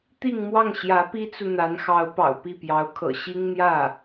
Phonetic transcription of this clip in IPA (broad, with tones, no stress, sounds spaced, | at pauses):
t̪ i˥˧ ŋ m w ɑ˥˩ ŋ ɕ j ä˧˥ p i˥ t͡s u˨ n̪ a˧˥ n x ɑ˧˥ ʊ̯ p ɑ̰˨˩ ʊ̯ p i˥˩ p j ɑ˧˥ ʊ̯ kʰ ɤ̰˨˩ ɕ i˥ ŋ n̪ j ä˥˩